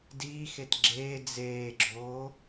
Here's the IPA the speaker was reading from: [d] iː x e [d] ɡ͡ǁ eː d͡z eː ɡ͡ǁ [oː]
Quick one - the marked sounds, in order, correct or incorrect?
correct, incorrect: t, correct

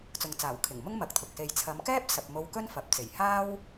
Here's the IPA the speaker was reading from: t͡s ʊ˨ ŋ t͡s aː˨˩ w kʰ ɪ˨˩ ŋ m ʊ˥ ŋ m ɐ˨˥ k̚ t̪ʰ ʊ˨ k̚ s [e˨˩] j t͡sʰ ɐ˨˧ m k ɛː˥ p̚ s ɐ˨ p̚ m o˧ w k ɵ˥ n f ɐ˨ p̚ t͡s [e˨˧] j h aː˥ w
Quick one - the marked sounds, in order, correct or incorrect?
incorrect: e˧, incorrect: e˨˩

